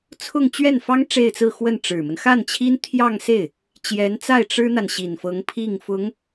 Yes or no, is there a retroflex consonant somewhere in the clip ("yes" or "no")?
yes